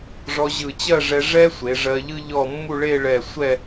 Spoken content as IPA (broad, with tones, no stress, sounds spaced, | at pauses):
ʐ ɔ˧ ʑ ɯ˧˩ t͡ɕ ɜ˥˧ ʐ ɛ˧ ʐ ɛ˥ sʷ e˩˧ ʐ ɜ˧ ʎ ɯ˥ ʎ ɔ˥˧ mː u˥˧ ɭ e˥˧ ɭ ɛ˧˩ sʷ ɛ˥˧